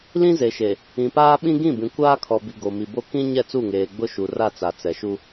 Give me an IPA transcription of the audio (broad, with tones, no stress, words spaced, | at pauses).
lĩ˦ze˨ʃe˨ | ĩ˨paː˦ɓĩ˦ ɡĩ˦˨bĩ˨ kʷaː˦kʰɔ˨bi˨ ɡo˨mi˨bo˦ kĩ˦ ɲɛ˦˨t͡su˦˨ŋeː˨ ɡ͡bʊ˦ʃu˨ra˦˨ t͡sa˨t͡sɛ˨ʃu˦